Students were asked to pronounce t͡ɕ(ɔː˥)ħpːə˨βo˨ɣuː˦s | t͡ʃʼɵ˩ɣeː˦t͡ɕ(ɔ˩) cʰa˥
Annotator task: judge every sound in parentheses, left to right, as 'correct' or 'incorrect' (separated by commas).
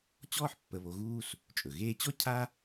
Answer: correct, incorrect